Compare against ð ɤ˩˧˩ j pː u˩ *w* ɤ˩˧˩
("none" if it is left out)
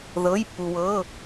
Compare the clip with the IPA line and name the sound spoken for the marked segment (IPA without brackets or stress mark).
w